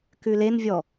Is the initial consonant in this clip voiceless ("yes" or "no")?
yes